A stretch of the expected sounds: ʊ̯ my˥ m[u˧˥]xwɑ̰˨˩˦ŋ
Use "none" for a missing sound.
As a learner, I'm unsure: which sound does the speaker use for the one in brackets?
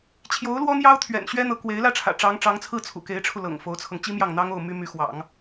y˧˥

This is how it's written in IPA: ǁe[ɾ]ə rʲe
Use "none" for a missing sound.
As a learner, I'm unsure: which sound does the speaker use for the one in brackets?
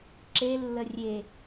lː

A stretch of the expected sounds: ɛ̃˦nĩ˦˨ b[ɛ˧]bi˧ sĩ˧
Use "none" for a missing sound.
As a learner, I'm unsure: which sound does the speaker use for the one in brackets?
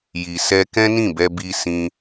ɛ˧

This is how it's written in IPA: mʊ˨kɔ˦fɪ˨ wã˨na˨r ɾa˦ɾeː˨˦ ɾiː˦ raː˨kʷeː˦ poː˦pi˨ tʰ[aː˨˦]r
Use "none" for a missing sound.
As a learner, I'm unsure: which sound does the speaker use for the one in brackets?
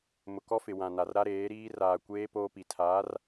aː˨˦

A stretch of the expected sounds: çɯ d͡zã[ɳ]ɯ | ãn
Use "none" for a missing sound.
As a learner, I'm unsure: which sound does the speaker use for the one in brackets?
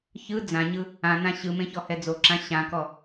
ɲ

